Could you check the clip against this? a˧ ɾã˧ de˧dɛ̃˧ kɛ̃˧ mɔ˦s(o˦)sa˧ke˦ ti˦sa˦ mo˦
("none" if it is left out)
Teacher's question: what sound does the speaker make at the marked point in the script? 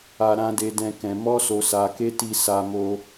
o˧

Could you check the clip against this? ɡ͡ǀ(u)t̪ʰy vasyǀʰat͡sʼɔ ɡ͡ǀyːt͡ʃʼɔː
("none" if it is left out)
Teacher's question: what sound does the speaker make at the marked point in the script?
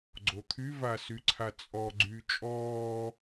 o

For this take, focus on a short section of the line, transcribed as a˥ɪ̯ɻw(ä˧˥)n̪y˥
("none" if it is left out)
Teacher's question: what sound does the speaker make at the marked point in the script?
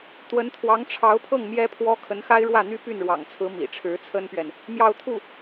ä˥˩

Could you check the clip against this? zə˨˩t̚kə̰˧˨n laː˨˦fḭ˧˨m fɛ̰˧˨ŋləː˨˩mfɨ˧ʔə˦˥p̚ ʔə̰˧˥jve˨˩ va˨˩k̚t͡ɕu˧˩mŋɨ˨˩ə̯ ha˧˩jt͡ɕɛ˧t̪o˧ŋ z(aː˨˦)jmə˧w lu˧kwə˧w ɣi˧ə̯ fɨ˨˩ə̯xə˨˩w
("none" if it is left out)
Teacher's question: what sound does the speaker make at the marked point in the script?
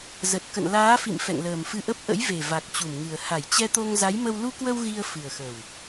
a˨˦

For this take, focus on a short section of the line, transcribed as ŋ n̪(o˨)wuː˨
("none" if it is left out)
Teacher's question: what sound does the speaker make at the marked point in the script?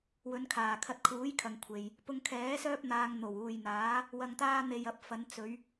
o˨˩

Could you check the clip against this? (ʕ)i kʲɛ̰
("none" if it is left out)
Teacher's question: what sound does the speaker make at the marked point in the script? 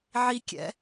ʕ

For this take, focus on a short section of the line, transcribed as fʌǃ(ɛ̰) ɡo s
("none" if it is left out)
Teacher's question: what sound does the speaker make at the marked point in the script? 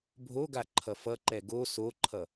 ɛ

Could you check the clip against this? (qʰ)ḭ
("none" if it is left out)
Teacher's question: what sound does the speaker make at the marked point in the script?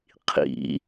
qʰ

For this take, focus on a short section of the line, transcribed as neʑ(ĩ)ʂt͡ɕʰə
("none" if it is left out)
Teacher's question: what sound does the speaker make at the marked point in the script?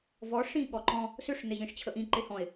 ĩ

